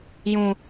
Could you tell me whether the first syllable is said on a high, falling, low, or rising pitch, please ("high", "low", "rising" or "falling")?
low